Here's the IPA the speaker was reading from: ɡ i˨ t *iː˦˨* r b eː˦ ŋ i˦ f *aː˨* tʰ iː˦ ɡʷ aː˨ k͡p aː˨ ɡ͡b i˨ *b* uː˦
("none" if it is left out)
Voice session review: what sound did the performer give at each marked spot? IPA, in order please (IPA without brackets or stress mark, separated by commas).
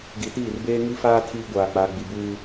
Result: iː˦˨, aː˦, b